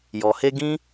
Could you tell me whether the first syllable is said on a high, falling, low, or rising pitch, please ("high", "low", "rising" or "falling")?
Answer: low